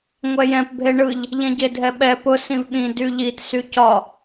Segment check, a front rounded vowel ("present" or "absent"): present